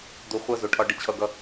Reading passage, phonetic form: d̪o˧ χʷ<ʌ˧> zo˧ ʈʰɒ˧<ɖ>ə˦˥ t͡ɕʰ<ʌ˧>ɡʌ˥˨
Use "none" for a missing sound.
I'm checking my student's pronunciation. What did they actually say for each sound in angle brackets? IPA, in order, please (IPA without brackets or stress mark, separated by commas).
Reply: ʌ˥˨, ɖ, ʌ˧